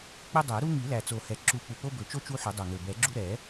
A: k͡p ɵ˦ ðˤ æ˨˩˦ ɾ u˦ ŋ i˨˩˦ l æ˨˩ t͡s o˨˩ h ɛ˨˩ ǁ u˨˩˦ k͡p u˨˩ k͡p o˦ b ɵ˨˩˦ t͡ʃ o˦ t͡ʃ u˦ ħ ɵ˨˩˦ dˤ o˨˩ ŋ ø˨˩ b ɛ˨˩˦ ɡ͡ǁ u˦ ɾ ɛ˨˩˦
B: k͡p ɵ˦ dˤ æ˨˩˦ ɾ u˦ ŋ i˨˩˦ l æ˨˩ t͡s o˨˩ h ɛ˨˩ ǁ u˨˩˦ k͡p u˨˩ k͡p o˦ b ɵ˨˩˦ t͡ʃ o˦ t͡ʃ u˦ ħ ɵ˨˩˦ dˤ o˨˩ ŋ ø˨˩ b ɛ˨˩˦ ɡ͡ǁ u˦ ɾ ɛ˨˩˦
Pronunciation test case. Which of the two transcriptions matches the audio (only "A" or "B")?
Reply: B